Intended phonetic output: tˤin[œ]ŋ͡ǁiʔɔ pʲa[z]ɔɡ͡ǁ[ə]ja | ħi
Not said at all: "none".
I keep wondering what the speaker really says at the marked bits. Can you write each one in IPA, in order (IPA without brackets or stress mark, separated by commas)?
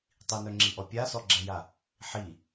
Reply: œ, s, ɛ